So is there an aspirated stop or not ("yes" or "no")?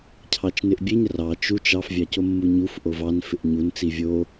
yes